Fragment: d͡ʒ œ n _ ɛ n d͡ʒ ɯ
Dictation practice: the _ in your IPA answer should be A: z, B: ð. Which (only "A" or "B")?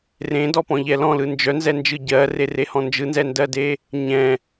A